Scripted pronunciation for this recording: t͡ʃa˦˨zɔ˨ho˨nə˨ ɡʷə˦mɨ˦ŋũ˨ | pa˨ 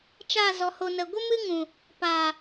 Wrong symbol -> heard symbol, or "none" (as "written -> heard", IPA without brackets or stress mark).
none